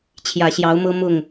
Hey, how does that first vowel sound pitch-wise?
low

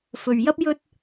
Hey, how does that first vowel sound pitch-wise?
low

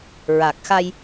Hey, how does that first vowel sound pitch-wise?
low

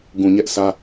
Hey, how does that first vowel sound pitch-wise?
low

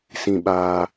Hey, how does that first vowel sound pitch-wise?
low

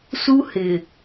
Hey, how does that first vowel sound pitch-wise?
high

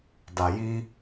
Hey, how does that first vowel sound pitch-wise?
low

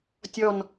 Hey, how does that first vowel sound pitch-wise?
falling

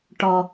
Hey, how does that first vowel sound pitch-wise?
low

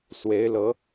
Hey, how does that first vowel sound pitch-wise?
rising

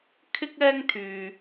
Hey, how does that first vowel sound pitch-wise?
high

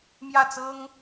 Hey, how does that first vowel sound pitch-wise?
falling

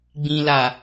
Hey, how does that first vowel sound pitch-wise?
low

